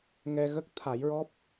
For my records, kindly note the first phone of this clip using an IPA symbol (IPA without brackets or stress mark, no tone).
ŋ